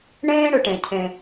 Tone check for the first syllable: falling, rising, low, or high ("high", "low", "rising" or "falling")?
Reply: high